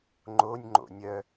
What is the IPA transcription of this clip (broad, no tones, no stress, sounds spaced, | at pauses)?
ŋ͡ǃ o nʲ ŋ͡ǃ o̰ nʲ œ